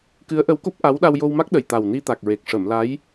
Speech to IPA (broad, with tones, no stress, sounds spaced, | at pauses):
k ɨ˧˥ ə̯ ʔ ə˧˥ w k o˦˥ p̚ ʔ a˧˥ w ɗ a˧ w j o˧ w m a˦˥ k̚ ɗ ə˨˩ j t̪ a˨˩ w n i˧ t̪ a˨˩ k̚ ɹ e˨˩ k̚ ʂ ə˨˩˨ m l a˧˥ j